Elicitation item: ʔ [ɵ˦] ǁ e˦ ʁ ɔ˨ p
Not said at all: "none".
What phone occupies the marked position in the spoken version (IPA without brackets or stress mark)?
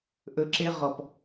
ɵ˦